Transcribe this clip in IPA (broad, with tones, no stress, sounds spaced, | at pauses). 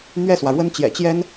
n̪ ɥ ɛ˥˩ s w ä˩ ɻ w ə˥ n t͡ɕ j ɛ̰˨˩ t͡ɕ j ɛ˥ n